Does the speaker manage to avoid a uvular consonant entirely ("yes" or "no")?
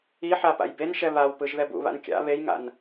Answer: yes